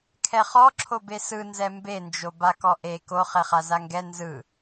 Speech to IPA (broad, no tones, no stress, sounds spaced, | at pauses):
kʰ ɛ χ ɔ ǁʰ o b e s ɯ n z ɛ m b e n d͡ʒ o b a k ɔ ʔ e k o χ ɛ χ a z a ŋ ɡ ɛ n z ɯ